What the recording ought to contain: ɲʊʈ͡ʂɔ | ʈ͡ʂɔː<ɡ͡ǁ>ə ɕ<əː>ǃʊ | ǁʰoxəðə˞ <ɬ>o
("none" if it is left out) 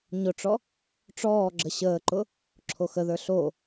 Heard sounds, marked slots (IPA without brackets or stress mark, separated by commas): ɡ͡ǁ, əː, ɬ